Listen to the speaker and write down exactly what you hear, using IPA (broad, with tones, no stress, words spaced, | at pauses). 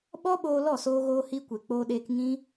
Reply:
ɓɔ˦ɓoː˧ lɔ˦˨soː˧ɣoː˧hi˧ kʷe˨k͡poː˧ɗeː˧k ŋĩ˦